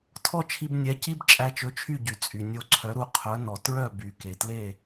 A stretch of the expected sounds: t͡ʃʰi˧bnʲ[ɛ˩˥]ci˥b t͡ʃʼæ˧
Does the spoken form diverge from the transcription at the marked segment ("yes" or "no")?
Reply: no